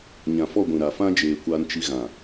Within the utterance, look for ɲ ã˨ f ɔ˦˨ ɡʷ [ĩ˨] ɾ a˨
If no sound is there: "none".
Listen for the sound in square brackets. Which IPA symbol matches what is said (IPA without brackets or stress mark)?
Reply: ĩ˨